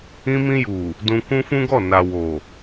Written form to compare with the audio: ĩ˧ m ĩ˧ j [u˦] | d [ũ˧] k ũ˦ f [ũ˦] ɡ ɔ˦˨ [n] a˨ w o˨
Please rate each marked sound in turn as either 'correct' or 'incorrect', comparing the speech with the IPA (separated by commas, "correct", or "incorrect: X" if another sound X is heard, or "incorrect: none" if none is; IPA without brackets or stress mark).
incorrect: u˨, correct, correct, correct